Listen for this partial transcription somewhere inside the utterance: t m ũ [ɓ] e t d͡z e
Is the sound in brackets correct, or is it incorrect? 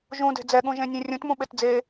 correct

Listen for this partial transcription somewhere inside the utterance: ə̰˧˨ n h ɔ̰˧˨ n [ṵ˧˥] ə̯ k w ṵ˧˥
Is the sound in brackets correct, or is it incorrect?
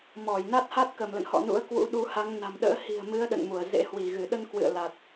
correct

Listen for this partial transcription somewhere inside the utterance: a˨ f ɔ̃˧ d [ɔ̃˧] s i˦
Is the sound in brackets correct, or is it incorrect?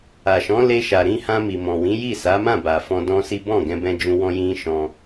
incorrect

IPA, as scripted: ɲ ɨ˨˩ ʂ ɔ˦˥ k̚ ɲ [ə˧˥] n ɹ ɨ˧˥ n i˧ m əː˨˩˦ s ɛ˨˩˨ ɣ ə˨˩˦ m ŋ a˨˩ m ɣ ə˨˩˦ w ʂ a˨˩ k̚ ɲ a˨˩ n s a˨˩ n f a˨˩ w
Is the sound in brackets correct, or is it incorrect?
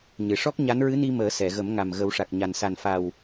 incorrect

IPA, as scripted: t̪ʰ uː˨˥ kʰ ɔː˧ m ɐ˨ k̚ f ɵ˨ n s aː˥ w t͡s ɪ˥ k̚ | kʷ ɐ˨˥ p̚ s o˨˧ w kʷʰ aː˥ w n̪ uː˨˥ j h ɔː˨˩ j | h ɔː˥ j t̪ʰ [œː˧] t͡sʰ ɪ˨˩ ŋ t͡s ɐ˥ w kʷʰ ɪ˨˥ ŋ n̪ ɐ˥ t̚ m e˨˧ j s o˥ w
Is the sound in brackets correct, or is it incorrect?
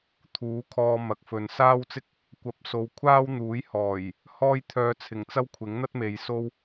correct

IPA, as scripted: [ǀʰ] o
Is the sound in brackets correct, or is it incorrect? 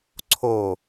correct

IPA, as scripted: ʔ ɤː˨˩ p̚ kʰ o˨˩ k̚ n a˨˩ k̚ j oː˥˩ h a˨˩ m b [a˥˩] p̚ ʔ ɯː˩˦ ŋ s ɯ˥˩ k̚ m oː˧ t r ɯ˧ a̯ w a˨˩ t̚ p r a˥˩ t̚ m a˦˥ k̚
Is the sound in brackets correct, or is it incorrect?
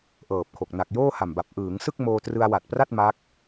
incorrect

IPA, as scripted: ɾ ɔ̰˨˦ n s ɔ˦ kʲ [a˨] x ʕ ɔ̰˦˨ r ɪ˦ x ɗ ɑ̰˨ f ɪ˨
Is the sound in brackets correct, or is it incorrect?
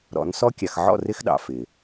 correct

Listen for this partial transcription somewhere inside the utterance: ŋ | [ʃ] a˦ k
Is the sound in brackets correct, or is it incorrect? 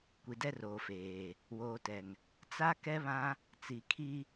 incorrect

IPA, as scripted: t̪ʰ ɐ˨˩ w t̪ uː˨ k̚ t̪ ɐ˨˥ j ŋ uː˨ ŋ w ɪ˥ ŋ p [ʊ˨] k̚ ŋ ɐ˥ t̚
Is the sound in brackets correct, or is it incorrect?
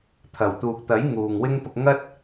incorrect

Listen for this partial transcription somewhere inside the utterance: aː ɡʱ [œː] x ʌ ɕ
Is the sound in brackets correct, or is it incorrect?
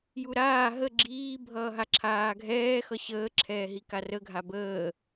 incorrect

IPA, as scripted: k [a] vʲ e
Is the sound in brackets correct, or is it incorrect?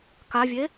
correct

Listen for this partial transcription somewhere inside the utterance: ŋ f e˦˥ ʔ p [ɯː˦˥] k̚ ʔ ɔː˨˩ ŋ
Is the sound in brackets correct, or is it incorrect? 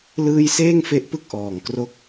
incorrect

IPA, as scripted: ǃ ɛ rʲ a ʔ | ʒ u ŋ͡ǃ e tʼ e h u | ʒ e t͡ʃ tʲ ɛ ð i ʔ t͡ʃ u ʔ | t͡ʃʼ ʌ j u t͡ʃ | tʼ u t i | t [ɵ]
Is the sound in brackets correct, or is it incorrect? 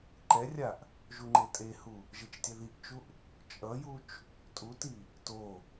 incorrect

